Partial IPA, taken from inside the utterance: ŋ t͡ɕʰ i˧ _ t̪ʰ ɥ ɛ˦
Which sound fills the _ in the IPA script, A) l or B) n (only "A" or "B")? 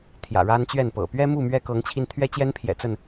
B